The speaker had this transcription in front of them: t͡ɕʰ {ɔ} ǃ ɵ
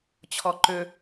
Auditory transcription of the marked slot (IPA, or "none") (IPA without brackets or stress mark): ɔ